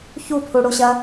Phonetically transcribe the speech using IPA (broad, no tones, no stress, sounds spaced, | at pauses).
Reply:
ç u pʰ u ɽ u ɕ ɐ